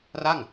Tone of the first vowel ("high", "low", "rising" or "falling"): falling